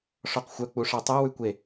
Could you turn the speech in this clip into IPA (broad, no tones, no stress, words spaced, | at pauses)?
ʂɔqxʷœ k͡puʂɑtˤæ wʉkʷe